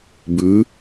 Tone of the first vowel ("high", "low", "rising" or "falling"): rising